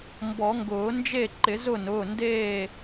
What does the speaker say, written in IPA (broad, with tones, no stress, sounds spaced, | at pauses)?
m b ɔ˨˩˦ ŋ ɡ ʊː˨˩˦ n d͡ʒ e˥˨ ǃ ɪ˨˩˦ z ʊ˥˨ n ʊː˩˧˩ n d eː˥˨